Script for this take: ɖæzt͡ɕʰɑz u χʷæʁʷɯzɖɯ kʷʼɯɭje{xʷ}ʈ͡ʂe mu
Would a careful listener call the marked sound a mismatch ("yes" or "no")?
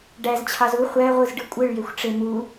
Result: no